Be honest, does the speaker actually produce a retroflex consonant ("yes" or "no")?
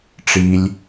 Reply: yes